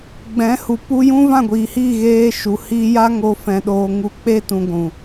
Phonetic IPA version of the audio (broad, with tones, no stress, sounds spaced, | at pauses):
ɡ͡b ɛ̃˨˦ h u˨ p u˧ j ũ˦ v ã˦˨ ɡʷ iː˨ h iː˦˨ ɣ eː˧ ʃ u˨ h iː˧ j a˦ ŋ oː˧ f ɛ̃˨ ɗ oː˨ ŋ u˧ k͡p eː˦ t ũ˧ ɡʷ ũ˨